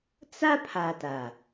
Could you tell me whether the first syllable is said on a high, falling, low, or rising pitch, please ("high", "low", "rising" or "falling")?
high